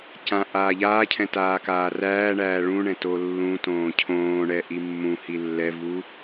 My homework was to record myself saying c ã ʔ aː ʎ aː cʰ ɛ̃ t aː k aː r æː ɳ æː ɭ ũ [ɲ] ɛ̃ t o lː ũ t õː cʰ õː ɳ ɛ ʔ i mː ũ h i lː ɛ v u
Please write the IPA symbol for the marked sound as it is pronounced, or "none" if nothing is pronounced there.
ɳ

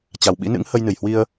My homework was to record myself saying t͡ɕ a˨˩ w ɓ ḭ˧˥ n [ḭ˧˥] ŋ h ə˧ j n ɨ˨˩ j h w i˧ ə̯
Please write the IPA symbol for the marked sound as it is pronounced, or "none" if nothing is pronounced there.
ɨ̰˧˥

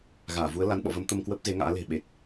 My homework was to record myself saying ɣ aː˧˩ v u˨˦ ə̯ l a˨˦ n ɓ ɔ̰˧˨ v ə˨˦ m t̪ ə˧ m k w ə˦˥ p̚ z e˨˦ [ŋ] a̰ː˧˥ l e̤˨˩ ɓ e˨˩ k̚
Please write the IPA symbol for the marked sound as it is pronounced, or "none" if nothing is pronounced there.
ŋ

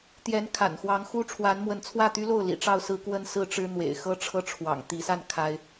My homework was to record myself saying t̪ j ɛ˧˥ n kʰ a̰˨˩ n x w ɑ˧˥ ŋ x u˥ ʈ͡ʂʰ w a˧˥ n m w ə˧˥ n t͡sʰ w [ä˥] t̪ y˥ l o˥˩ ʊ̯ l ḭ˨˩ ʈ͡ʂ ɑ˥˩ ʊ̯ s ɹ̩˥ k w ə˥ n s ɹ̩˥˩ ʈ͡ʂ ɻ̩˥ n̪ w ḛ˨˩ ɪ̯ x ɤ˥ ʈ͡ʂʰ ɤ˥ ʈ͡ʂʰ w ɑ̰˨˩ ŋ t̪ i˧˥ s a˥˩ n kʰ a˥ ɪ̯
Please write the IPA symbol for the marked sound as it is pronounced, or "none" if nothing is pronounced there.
ä˥˩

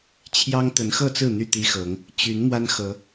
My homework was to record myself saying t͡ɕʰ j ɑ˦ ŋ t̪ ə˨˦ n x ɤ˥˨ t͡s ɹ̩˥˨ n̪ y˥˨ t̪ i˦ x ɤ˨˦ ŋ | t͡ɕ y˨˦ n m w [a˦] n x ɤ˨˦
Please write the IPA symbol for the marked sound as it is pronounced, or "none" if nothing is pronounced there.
a˦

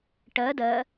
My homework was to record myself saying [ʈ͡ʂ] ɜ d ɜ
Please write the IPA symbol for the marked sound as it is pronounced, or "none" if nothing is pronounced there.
ʈ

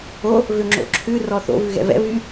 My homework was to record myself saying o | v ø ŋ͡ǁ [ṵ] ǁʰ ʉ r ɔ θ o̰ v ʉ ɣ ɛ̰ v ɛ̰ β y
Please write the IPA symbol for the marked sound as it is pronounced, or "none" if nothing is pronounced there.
o̰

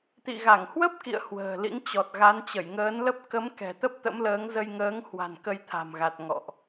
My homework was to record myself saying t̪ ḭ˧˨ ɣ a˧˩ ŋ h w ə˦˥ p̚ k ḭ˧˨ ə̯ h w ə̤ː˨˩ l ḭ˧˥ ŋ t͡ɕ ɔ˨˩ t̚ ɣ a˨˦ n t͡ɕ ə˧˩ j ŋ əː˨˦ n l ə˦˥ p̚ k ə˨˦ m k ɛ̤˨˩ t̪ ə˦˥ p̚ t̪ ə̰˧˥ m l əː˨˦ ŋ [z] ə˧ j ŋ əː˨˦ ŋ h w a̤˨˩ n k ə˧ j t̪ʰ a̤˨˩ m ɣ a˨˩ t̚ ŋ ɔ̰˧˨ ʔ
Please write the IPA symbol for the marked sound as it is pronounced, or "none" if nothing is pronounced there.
z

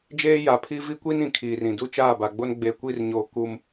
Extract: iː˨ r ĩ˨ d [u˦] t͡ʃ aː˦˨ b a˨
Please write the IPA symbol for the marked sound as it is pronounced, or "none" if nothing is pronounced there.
u˦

